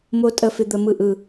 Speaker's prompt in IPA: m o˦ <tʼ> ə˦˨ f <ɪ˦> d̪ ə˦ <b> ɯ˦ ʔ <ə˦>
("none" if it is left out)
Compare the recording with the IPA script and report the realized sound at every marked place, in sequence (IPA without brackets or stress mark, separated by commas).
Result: tʼ, ɪ˦, m, ɯ˦